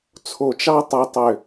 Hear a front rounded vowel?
yes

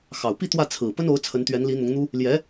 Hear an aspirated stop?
yes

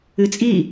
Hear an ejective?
yes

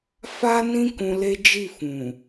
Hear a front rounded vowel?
no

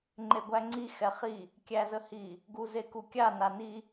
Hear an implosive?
no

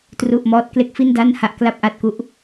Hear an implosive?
no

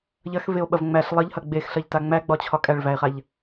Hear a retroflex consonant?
yes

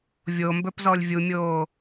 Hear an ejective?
no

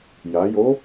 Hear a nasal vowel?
no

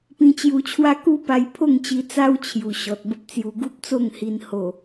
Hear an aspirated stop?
yes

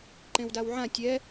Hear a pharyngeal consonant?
yes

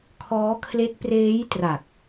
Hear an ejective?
no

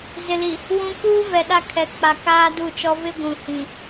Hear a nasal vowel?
yes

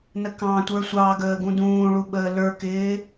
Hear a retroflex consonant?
yes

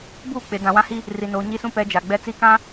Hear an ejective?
no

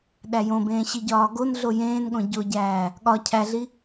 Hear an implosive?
yes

